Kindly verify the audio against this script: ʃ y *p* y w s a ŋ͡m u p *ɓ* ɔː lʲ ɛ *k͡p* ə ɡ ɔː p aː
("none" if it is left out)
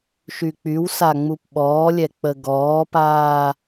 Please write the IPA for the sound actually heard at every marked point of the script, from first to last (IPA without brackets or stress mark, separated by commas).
k͡p, ɓ, k͡p